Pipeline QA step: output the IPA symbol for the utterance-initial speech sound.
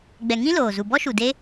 ɡ͡b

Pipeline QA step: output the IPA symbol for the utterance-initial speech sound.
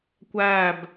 kʷ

